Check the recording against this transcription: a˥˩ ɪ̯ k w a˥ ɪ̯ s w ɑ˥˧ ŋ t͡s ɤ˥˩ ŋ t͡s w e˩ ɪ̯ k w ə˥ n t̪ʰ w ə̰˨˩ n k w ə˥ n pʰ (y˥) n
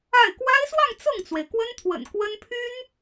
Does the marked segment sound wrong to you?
no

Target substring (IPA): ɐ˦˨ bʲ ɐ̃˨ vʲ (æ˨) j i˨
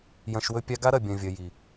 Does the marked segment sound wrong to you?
yes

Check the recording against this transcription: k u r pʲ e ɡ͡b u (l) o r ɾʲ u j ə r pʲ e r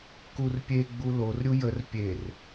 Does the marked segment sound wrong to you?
no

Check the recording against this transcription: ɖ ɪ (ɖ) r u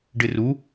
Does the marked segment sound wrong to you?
yes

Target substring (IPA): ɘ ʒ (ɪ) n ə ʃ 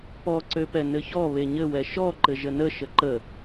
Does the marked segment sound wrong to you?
yes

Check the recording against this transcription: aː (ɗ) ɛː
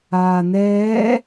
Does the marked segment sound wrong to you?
yes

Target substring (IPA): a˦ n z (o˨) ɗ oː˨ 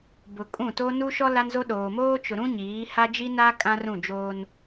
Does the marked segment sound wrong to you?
yes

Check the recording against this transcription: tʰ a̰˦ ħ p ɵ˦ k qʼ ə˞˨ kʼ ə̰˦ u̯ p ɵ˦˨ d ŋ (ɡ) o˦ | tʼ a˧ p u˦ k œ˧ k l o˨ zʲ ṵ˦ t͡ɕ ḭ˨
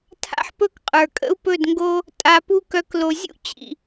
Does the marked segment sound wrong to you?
no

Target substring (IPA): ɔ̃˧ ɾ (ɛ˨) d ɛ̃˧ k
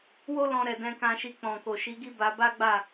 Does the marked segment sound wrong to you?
no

